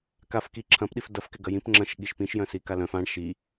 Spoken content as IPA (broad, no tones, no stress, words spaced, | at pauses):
kafki ǁʰɐ̃pɗif dɐfkɪ ɡɐjĩp ŋ͡ǁɐ̃ʃ ɠiʃpĩʃjœ̃ sikalœ̃f ãɳ ʃi